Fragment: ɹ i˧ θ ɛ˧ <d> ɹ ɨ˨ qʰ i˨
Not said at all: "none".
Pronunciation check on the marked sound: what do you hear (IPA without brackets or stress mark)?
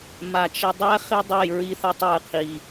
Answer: tˤ